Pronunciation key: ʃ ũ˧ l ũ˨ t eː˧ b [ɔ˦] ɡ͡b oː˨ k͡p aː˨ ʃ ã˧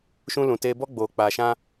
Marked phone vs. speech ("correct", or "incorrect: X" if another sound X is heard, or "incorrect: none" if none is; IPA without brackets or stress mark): correct